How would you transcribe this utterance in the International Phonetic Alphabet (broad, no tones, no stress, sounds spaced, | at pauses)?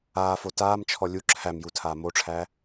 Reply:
aː f o t aː m t͡ʃʰ ɔ lʲ u ǁʰ æ m j u tʰ aː m o ʈ͡ʂʰ æ